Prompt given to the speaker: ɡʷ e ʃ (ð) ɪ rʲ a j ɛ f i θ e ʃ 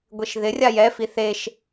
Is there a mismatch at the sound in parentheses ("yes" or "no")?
no